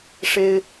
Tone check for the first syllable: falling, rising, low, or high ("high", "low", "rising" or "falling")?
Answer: high